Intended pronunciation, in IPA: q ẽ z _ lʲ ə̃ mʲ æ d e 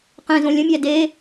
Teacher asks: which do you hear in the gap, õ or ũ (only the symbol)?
õ